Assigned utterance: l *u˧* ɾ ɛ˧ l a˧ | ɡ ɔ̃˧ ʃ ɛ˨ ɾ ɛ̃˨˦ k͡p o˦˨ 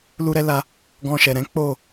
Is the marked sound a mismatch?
no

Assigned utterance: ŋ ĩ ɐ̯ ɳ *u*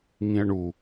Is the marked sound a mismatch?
no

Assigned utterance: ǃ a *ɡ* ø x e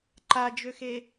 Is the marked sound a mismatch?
yes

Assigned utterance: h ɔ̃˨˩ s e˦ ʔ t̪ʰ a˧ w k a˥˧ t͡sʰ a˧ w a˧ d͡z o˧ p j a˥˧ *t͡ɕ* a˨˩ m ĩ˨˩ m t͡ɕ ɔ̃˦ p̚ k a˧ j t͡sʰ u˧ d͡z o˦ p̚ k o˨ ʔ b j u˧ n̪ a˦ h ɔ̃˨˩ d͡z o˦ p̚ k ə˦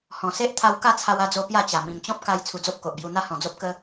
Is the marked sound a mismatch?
no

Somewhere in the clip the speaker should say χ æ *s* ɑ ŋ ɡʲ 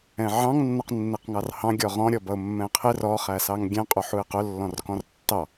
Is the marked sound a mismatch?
no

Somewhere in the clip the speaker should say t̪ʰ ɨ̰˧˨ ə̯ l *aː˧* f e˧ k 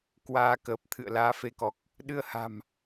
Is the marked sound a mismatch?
yes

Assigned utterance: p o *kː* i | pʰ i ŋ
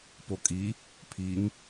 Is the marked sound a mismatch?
yes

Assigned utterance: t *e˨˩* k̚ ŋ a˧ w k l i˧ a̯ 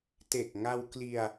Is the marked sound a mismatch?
no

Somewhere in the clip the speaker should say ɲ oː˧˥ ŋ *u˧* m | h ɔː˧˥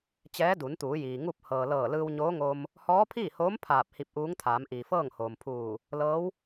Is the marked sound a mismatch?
yes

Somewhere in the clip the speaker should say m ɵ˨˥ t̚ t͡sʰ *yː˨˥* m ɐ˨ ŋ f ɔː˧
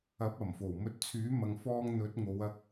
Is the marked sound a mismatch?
no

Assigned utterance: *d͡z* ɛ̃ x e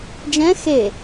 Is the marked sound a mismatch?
yes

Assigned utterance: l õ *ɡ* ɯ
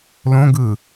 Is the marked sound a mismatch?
no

